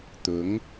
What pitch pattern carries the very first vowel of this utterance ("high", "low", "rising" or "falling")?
rising